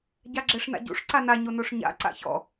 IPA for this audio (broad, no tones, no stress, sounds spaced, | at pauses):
ɟ a ɡ͡ǁ ɛ ʂ n a̰ ɟ ṵ ʂ ǀ a n a ɲ o n o ʂ ɲ a̰ ǀ a̰ ç ɔ̰